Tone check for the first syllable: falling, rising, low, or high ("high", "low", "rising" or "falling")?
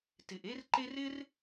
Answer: low